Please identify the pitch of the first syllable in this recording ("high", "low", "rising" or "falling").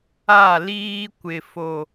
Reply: falling